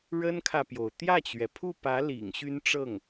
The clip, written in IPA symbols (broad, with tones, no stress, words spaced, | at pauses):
ɻə˥nkʰä˨pjo˩ʊ̯ t̪jä˥˩t͡ɕɥɛ˩pʰu˥˩pä˧˥ lḭ˨˩ŋɕy˥nʈ͡ʂɤ˥˩ŋ